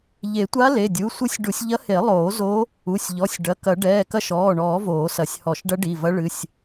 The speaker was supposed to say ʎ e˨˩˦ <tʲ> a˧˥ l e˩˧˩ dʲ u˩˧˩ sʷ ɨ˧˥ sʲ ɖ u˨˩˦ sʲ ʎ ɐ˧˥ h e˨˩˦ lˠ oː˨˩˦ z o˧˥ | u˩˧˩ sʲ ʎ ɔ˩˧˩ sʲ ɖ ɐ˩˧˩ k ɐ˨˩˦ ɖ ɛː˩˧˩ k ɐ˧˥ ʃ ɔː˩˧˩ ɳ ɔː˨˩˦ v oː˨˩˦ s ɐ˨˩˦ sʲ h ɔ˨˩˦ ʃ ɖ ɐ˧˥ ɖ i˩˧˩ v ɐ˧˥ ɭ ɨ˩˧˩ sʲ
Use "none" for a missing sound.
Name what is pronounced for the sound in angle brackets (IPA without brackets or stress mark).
tʷ